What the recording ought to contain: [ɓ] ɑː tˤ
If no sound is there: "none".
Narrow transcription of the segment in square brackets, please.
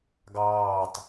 ɡ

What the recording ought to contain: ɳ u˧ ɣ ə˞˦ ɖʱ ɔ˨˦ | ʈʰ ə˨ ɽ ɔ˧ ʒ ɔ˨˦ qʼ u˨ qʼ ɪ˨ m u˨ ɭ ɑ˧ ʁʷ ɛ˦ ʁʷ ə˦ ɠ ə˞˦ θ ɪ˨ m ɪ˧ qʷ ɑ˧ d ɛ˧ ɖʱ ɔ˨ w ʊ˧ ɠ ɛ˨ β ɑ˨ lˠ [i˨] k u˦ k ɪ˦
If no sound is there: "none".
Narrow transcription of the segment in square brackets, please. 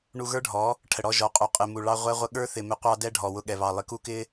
ɪ˨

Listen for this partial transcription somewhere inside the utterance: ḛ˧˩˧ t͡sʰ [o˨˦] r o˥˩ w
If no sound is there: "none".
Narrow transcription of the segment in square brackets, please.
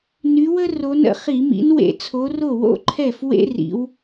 o˨˦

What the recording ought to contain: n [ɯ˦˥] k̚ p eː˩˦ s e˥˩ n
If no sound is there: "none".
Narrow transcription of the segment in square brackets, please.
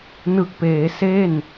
ɯ˨˩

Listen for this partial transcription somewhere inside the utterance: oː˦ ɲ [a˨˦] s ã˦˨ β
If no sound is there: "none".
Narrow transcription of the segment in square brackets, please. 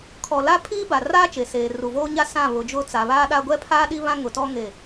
a˦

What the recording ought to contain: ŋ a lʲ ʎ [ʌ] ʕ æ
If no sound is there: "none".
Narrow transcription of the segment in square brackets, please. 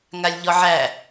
ɔ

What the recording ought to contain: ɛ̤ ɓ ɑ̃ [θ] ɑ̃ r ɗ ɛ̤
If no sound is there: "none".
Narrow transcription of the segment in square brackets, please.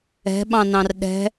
n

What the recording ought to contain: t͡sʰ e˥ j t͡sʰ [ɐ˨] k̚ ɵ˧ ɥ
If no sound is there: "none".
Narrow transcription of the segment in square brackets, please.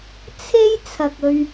ɐ˨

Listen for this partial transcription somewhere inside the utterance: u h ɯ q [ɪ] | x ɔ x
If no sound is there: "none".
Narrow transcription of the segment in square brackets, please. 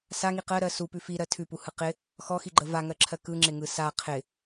ɪ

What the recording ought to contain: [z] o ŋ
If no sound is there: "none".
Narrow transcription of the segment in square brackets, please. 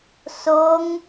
s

